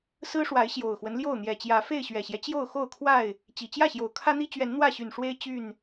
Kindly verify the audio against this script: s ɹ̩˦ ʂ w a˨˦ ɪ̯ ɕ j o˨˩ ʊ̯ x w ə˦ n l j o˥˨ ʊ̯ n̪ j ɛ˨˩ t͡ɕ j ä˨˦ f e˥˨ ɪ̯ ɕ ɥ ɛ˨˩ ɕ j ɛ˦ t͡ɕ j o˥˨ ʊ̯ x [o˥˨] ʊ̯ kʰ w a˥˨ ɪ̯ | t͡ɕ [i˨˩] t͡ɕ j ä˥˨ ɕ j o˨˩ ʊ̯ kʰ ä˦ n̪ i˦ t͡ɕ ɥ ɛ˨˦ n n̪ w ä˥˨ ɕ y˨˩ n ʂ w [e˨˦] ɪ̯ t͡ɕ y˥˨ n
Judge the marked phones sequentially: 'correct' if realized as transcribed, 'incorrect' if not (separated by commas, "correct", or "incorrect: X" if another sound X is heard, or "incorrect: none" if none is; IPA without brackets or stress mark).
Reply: correct, correct, incorrect: e˦